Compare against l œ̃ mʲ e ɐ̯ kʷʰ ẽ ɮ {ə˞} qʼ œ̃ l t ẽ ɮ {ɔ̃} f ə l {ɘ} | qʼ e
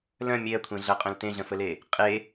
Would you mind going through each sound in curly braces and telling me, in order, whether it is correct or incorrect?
incorrect: ɐ, incorrect: ə̃, incorrect: e

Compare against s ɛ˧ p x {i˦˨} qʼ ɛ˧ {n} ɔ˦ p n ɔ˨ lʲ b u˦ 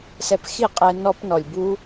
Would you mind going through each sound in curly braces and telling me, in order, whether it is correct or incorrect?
correct, correct

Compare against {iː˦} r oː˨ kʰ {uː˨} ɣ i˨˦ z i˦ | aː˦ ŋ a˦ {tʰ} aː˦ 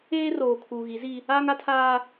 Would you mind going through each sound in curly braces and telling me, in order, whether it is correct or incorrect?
incorrect: eː˦, correct, correct

